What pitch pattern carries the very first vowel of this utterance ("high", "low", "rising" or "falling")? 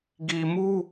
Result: low